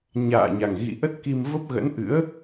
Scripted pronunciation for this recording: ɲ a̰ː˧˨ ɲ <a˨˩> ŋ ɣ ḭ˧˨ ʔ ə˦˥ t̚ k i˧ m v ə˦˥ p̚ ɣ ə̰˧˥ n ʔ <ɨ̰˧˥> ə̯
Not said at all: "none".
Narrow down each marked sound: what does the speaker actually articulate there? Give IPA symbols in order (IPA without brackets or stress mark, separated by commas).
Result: a˨˩, ɨ̰˧˥